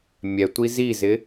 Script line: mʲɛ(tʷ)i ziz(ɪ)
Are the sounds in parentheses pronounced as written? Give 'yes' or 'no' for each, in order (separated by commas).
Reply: yes, yes